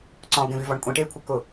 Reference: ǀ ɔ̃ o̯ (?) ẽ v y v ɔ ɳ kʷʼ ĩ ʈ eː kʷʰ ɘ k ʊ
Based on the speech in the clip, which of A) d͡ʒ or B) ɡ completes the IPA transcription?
B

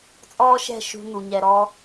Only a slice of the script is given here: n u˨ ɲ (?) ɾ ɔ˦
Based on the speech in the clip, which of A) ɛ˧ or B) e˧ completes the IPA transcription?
A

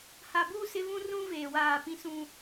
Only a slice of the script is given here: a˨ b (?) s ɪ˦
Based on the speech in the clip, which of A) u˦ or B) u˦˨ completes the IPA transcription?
B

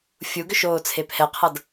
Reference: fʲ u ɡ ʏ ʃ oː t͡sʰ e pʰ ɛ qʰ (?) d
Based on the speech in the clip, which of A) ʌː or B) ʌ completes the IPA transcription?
B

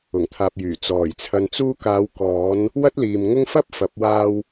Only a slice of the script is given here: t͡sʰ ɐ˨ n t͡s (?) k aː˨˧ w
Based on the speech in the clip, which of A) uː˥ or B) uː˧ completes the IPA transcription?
B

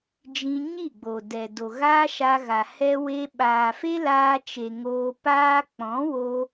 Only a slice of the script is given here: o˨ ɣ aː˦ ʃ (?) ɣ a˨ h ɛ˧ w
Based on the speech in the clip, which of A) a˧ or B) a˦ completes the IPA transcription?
A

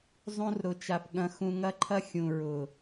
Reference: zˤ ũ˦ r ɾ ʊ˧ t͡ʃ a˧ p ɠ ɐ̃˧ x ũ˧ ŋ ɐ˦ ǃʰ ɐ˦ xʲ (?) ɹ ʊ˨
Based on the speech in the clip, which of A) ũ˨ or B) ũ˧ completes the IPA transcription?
A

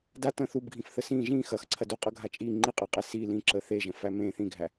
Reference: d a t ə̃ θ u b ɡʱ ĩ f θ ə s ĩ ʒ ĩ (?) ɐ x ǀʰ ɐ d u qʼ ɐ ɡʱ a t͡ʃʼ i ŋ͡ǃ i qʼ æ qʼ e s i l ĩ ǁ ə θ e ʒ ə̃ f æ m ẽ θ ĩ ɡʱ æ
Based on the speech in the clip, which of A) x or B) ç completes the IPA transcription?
A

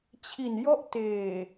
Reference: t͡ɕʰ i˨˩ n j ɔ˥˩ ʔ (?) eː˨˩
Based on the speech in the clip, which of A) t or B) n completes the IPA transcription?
A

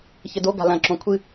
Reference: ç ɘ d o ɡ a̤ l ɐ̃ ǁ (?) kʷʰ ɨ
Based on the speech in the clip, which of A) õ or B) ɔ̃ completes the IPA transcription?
A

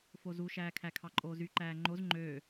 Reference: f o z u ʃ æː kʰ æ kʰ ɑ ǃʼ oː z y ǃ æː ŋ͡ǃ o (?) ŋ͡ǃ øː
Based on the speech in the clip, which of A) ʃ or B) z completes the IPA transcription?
B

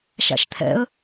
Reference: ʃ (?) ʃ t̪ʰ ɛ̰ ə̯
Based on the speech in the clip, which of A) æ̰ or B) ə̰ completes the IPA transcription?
A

